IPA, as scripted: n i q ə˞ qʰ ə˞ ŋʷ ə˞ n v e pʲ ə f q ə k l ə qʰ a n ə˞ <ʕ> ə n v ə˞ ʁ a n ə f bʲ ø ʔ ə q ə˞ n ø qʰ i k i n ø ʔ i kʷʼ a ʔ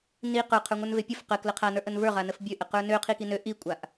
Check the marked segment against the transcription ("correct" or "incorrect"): incorrect